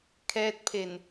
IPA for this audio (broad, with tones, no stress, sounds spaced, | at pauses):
kʰ ɛː˦˥ t̚ pʰ e˨˩ n